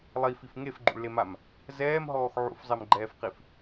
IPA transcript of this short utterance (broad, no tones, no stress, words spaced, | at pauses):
lˠifif ŋefɡ͡ǃṵɭlemam | zɛːmɦɔːx ʕṵfzˤɛmɡ͡ǃɛːfqif